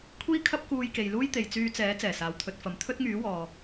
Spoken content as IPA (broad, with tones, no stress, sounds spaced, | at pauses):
kʷʰ iː˥ kʰ ɐ˥ p̚ k uː˧ j k e˨ j l uː˥ j t̪ e˨ j t͡s yː˧ t͡s ɛː˨˥ t͡s ɛː˨˩ s aː˨ w t̪ʰ ɵ˧ t̚ f ɐ˨˧ m t̪ʰ ɵ˥ t̚ ŋ yː˨˥ w ɔː˨